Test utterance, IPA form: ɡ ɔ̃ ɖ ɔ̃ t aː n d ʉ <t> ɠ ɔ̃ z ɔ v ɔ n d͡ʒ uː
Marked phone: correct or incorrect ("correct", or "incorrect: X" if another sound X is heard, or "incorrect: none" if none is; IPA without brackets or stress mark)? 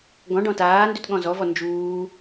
correct